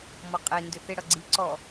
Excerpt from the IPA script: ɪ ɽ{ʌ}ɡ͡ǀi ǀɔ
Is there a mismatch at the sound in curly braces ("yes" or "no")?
no